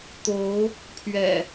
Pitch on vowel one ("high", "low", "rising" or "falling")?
rising